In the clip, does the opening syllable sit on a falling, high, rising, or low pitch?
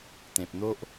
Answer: low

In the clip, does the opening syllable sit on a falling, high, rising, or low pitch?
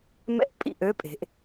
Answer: falling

